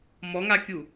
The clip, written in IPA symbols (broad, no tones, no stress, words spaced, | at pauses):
mɔŋakʲu